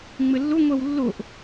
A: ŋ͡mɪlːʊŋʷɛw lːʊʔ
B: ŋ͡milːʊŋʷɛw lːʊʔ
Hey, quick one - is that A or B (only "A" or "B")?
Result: A